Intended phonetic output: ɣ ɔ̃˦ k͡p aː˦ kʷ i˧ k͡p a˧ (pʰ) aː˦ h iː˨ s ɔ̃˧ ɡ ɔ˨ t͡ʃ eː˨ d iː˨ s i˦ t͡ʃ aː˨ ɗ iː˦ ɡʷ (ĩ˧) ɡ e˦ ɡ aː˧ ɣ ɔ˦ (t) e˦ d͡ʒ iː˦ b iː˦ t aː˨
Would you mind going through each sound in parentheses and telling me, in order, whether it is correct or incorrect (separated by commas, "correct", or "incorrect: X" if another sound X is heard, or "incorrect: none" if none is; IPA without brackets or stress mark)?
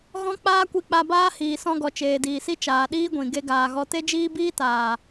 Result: incorrect: b, incorrect: ĩ˨, correct